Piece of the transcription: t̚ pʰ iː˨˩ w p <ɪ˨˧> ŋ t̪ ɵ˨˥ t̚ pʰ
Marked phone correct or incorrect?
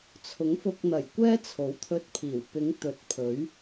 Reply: correct